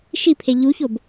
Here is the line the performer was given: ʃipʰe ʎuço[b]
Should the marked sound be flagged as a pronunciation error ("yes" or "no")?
no